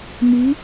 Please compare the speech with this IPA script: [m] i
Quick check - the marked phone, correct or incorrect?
correct